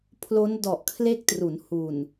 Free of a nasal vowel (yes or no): yes